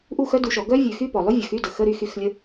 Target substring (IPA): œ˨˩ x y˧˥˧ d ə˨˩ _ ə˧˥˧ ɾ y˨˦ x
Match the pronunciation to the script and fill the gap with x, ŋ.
x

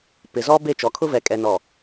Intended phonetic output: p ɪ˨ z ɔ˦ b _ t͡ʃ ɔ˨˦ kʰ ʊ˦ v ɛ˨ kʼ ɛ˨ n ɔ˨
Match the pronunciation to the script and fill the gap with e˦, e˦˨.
e˦˨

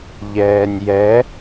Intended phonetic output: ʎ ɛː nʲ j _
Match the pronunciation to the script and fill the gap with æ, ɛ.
ɛ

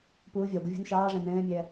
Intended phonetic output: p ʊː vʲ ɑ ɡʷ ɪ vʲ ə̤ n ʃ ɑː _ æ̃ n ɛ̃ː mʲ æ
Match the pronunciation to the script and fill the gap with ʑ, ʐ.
ʐ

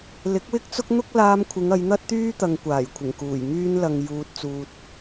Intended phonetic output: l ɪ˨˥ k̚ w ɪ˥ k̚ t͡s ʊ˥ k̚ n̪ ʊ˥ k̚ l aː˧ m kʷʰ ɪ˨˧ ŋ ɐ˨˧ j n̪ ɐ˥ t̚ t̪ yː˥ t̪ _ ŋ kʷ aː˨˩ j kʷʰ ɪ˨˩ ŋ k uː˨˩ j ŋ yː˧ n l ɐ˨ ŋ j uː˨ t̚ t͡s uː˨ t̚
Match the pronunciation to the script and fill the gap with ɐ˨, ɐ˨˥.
ɐ˨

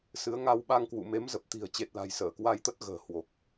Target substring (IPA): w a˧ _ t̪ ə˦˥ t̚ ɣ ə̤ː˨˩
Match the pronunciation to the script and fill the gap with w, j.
j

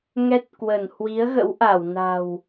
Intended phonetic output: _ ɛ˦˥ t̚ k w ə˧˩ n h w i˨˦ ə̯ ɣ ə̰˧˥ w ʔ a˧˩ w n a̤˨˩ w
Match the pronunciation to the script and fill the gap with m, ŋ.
ŋ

